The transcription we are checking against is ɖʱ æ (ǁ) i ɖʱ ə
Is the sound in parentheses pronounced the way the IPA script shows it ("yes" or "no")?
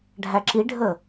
yes